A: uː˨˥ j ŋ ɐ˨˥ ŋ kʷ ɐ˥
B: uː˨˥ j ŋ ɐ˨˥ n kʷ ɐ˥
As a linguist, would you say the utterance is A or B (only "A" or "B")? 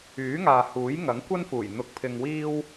A